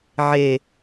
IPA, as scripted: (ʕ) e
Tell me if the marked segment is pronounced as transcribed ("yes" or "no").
yes